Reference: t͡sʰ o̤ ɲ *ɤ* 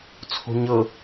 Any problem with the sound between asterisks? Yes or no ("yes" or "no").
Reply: no